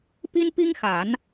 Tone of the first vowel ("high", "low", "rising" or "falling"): high